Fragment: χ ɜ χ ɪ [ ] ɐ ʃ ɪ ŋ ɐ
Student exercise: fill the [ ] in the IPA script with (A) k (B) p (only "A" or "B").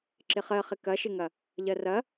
A